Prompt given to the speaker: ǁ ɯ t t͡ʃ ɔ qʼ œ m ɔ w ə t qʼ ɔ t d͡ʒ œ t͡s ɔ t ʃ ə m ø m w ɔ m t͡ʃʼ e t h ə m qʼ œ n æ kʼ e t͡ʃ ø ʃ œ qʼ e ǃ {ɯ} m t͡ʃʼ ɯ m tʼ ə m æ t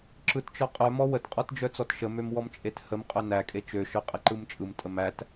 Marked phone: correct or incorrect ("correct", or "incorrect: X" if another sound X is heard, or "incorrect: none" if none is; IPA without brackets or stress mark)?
correct